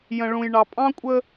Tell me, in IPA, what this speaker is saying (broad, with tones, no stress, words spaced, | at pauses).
jə̃˨ɭũ˨j ɳɑ˨pʼɑ̃˦kʷʼə˦